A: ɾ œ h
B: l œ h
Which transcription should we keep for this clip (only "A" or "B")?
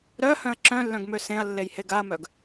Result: A